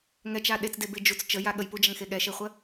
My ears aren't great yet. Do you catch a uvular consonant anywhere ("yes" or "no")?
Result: yes